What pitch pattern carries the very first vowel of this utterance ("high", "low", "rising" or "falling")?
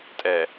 low